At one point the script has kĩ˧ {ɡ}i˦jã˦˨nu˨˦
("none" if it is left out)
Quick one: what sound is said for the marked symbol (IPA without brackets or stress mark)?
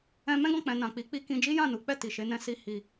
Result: d͡ʒ